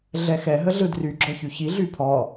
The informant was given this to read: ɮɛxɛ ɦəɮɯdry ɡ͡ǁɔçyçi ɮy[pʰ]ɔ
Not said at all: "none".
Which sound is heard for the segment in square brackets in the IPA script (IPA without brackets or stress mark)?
pʰ